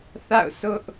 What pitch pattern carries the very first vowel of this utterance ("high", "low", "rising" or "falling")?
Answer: falling